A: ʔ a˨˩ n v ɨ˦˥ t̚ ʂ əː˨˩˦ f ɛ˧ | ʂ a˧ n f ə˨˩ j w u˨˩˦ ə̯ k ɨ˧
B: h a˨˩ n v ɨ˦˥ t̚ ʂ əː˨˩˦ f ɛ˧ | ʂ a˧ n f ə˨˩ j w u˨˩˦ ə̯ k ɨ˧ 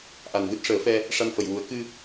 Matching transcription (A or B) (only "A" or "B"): A